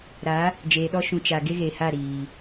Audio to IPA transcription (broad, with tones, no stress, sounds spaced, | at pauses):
ɾ a˨˦ | d͡ʒ eː˨ ɗ ɔ˧ ʃ ũ˨ t͡ʃ a˨ ɡ e˦ ɣ e˨ h a˦˨ ɾ iː˨